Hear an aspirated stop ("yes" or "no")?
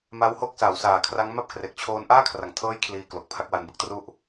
yes